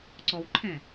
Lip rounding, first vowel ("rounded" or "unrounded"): rounded